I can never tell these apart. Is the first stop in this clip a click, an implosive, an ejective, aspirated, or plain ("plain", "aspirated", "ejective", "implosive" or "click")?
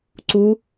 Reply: click